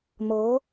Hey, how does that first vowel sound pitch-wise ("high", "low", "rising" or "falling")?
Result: rising